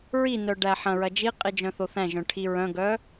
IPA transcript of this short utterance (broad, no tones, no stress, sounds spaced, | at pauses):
ɹ i n œ ɖ æ ħ ɐ̃ ɹ ɐ d͡ʒ i qʼ i d͡ʒ œ̃ θ o θ æ̃ ʒ œ̃ ʈʰ i ɹ œ̃ ɡ œ